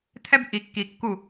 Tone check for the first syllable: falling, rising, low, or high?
high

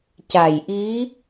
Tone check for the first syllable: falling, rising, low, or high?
low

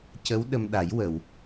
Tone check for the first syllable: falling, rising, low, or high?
rising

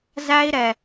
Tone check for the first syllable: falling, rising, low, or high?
high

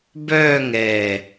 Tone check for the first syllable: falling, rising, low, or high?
falling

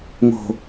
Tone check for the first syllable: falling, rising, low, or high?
low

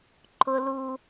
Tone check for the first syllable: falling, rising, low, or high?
high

